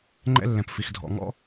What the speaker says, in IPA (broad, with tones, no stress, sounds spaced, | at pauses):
ŋ͡ǃ ɛ̰˦ lː ɛ̃˨ p f i˨ x dʱ ɔ̰˨ ŋ ɔ̰˦